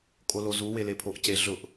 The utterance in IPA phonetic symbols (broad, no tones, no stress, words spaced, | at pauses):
kʼolozu welepʰoʔce ɮʊʔ